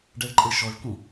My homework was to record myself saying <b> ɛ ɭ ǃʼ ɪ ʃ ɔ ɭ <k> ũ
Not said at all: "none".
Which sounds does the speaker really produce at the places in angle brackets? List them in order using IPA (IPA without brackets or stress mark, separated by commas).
ɖ, k